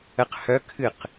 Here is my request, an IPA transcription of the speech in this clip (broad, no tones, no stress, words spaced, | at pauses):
əq hœ kʰɨq